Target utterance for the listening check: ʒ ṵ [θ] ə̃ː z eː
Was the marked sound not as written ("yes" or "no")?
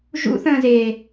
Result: no